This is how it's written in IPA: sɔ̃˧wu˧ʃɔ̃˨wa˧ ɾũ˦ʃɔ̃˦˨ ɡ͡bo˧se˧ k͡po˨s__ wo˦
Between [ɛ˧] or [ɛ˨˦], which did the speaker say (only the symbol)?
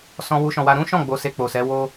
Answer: ɛ˨˦